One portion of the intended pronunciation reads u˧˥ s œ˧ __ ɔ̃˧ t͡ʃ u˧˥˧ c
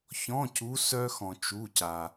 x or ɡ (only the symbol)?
x